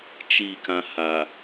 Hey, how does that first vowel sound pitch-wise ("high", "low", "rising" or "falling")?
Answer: falling